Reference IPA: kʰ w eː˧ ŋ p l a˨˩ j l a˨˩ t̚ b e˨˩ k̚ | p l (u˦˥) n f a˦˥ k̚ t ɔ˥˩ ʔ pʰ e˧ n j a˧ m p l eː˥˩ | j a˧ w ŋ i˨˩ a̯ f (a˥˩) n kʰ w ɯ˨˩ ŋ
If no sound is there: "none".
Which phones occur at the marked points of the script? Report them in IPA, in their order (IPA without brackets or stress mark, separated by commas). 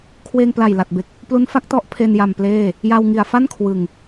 u˦˥, a˥˩